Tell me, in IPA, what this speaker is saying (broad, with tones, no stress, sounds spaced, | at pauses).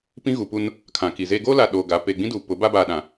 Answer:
p ĩ˦ ɣ u˨ p u˦ n | kʰ ã˨ k i˨ z eː˦ ɡ o˦ l a˨ ɗ oː˨ ɡ a˨˦ p e˨ ɡ͡b ĩ˦ d uː˨ p ʊ˨˦ b a˦ b aː˨ ɗ ã˨